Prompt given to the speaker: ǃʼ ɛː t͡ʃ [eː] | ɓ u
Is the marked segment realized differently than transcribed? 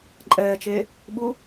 no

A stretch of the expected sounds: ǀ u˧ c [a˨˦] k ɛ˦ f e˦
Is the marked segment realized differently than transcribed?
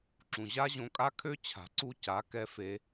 no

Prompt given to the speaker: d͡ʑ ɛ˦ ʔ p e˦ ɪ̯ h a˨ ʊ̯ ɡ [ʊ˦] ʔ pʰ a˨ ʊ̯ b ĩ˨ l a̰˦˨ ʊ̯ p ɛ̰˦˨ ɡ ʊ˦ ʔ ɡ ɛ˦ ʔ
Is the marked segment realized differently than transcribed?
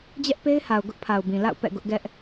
no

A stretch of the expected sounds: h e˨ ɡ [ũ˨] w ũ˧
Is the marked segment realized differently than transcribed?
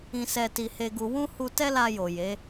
yes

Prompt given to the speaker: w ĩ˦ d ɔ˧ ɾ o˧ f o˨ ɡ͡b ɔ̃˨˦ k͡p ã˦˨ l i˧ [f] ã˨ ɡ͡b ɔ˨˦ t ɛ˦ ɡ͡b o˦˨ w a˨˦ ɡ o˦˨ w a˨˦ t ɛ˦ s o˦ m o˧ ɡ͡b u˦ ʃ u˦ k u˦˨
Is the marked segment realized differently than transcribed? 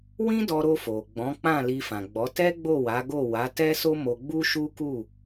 no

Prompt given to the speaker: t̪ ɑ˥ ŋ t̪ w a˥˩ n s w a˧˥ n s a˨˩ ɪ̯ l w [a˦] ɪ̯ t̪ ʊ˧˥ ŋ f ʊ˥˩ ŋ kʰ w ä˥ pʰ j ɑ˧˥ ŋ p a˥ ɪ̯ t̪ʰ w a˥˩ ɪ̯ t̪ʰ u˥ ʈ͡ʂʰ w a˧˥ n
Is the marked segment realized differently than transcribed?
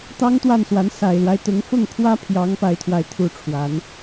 no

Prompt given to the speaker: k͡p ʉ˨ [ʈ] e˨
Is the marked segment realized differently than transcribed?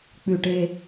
no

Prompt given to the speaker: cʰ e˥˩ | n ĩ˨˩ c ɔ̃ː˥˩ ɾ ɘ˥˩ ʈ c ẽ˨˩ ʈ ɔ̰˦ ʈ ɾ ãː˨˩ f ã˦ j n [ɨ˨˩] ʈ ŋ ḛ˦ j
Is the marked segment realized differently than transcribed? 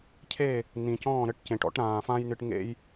no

